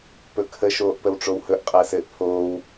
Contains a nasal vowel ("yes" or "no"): no